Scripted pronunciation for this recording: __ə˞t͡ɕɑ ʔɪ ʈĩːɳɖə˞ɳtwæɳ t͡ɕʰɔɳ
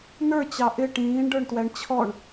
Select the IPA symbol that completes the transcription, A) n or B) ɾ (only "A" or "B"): A